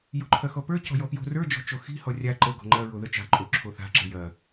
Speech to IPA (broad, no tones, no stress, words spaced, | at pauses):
jo̤ǃʰɐxɔpə˞ cɔ̤jɔpjo̤ rə˞ d͡ʒɔ̤t͡ʃoxi̤ hɔrʲa ǃə ɡɔ̤ŋ͡ǃɐ ɹoðət͡ʃa̤ ǃʼo ǁʰoθa̤ ǁə̤jɐ